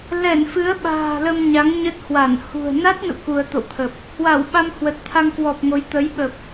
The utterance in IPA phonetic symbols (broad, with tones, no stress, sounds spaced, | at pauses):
l ɛ˧˩ n f ɨ˨˦ ə̯ ɓ a̤ː˨˩ l ə˧ m ɲ a˨˦ ŋ ɲ ə˦˥ t̚ h w a˧˩ n h ṳ˨˩ ə̯ n a˦˥ t̚ n ṵ˧˨ k u˧ ə̯ t̪ o̰˧˨ w t̪ʰ ə˨˩ p̚ | h w a˧˩ w ɓ a˧ m h w ə˨˩ t̚ t̪ʰ a˧ ŋ k w ɔ˨˩ p̚ ŋ o˨˦ j t̪ ə˨˦ j ɓ ə˨˩ p̚